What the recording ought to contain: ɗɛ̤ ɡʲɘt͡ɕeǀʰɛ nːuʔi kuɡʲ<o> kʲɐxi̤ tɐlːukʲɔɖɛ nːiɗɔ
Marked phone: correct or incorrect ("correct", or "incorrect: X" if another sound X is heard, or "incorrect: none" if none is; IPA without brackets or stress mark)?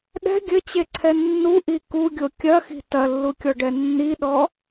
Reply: correct